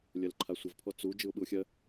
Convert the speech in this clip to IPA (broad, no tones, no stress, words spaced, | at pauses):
lʲɜlǃʰasʷəvpʰɔ t͡su d͡ʒɯʊ̯ɓɯʊ̯xʲɜ